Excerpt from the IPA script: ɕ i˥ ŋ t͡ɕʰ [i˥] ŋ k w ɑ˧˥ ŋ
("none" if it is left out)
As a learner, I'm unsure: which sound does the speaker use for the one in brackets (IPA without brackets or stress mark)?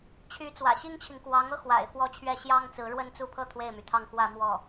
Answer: i˨